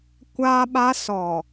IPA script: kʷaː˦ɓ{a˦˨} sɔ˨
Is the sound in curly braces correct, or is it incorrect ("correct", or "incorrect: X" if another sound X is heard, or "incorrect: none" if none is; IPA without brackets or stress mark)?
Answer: incorrect: a˦